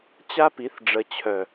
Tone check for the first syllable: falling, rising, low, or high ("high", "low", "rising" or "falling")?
high